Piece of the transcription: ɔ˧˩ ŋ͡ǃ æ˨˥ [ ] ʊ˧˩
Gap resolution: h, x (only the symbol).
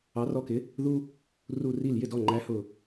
h